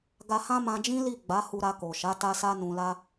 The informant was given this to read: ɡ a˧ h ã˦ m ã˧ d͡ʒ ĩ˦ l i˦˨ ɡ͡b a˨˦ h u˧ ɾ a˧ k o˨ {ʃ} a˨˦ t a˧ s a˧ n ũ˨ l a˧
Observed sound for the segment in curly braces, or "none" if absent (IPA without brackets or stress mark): ʃ